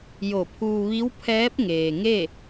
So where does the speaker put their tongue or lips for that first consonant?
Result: palate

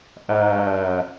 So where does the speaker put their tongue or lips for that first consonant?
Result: throat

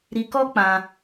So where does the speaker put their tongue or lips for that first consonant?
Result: tongue tip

